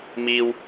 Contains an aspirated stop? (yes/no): no